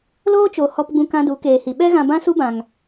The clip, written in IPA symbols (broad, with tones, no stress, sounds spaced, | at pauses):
l oː˦ t͡ʃ o˨ h ɔ˧ p ɡ͡b ũ˧ k ã˧ d u˨˦ k eː˨ h i˨ ɓ ɛ˦ ɣ ã˧ b ã˦ s u˦ b ã˨ ŋ